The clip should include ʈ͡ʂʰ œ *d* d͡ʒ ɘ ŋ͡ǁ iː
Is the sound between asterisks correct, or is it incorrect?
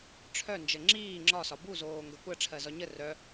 incorrect